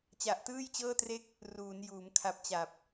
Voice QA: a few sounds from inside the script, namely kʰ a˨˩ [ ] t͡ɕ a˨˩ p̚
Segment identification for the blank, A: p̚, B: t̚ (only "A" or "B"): A